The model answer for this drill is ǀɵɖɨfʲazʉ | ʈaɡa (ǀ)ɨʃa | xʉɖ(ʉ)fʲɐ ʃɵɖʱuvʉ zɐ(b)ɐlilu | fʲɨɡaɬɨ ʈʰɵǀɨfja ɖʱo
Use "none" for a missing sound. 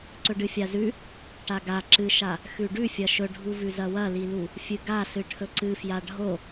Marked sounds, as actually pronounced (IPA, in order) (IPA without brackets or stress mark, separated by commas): ǁ, ʉ, w